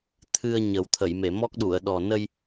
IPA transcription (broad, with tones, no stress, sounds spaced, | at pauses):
t̪ʰ ɨ˧ ə̯ ɲ ə˨˩˦ w t̪ʰ ə˨˩˨ j m e˨˩˨ m ɔ˦˥ k̚ ɗ u˨˩˨ ə̯ ɗ ɔ˨˩ n ə˧ j